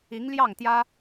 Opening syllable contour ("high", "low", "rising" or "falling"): rising